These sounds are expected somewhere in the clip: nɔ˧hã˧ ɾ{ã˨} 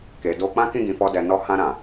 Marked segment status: correct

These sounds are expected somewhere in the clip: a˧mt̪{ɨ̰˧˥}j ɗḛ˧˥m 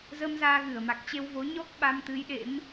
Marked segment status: incorrect: ɨ˨˦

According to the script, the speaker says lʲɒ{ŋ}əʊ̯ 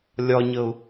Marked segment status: incorrect: ɲ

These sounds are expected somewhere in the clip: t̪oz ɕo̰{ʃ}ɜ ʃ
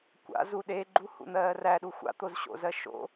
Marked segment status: incorrect: z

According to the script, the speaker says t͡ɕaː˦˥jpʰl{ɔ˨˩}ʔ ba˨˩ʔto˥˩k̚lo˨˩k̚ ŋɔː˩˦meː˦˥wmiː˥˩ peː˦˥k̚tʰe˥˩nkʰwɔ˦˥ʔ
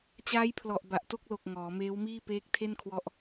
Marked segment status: correct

